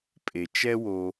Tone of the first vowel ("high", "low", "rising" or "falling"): low